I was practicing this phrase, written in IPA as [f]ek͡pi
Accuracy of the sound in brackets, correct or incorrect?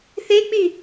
incorrect